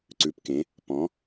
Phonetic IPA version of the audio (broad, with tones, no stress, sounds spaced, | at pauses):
ǀ ʉ˩˧ p k ẽ˩˧ | p ɔ̃˩˧